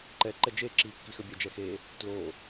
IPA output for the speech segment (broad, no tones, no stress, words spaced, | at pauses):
ǃɛ ǃɛd͡ʒe ǁikːixəbʲɛ d͡ʒɛxe | tlo